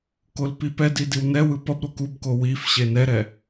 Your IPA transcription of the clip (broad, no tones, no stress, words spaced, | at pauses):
kolpipɛdi diwnɛwɯ pʌbɾo kubko wifɕe nɛɾɛ